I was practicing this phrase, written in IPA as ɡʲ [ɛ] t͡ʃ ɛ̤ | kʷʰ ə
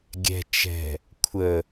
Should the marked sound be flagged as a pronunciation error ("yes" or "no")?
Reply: yes